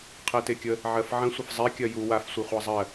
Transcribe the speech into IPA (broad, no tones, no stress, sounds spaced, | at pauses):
qʰ ɛ t e kʲ ə | ʕ ɜ f ʕ ə̃ sʷ ə f zˤ ɛ kʲ ɜ j u w a f sʷ i χʷ a zˤ ɜ